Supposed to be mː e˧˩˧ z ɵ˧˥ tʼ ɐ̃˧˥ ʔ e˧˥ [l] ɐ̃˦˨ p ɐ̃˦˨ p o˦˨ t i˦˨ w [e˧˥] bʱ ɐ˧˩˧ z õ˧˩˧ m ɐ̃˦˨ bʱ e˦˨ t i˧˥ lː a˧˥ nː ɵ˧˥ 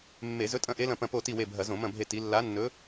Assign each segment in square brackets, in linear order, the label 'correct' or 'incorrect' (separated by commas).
correct, incorrect